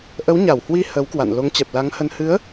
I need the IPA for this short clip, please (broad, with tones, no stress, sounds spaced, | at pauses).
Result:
ʔ ə˨˦ w ɲ a˧˩ w h w i˧ h ə˨˦ w k w a̰˧˨ n l o˨˦ ŋ t͡ɕ ɛ˨˩ p̚ l a˨˦ ŋ h ə˧ n h ɨ˨˦ ə̯